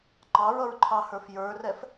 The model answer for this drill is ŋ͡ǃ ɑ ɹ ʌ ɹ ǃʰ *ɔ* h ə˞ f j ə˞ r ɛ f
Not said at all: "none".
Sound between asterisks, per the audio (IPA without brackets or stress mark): ɑ